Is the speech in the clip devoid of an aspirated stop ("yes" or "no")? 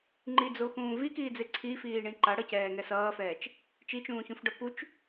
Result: no